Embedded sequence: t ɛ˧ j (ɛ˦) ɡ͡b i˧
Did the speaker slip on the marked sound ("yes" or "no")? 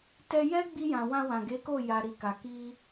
no